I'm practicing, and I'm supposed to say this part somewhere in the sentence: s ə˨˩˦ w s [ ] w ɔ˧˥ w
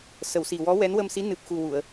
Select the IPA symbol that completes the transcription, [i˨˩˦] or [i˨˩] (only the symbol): i˨˩